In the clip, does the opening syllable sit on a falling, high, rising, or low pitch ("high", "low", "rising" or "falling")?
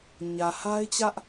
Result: low